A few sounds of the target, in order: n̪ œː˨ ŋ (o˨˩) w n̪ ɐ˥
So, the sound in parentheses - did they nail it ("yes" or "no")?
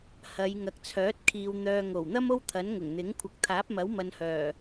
yes